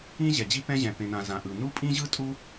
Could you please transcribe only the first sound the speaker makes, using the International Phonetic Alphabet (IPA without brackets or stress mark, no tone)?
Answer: ĩ